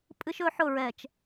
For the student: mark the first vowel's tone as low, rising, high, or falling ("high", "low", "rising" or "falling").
high